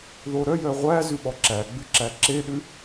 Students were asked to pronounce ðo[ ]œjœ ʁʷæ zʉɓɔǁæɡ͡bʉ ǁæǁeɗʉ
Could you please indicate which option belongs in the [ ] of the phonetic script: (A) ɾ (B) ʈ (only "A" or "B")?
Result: A